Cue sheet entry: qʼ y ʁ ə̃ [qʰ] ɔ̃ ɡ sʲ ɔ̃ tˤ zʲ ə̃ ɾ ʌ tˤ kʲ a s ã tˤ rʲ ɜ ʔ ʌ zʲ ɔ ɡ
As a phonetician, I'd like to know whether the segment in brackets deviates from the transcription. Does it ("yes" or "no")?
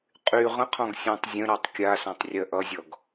no